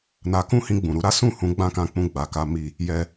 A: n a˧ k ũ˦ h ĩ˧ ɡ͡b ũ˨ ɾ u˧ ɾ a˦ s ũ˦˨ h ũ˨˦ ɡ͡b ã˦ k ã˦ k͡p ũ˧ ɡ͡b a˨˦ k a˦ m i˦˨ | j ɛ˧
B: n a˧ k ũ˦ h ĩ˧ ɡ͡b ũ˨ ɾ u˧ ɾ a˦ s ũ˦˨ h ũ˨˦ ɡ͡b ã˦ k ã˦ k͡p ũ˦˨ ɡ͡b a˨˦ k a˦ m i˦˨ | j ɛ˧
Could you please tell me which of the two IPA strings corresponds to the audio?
B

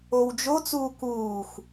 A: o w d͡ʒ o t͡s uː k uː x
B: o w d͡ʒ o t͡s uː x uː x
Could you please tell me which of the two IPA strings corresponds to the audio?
A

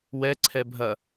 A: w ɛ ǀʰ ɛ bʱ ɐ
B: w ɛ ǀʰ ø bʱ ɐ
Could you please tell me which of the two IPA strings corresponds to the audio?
A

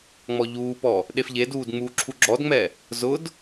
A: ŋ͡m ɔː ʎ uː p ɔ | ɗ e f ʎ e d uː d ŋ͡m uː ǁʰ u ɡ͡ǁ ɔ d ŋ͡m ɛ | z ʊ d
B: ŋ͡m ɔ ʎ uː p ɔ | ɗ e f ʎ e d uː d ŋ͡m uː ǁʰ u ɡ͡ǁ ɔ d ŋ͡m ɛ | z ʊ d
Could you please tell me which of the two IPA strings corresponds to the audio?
B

